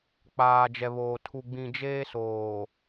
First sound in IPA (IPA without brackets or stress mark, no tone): k͡p